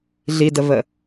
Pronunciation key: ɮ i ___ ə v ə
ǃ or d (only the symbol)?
d